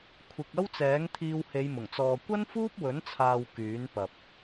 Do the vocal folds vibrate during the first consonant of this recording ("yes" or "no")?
no